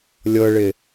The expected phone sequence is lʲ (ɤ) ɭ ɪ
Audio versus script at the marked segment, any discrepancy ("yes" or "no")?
no